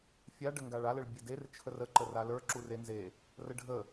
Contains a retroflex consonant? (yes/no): yes